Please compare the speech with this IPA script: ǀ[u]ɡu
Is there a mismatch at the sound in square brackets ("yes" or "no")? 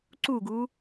no